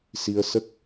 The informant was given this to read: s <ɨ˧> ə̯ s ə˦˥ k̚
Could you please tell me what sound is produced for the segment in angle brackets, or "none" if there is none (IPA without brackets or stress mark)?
i˧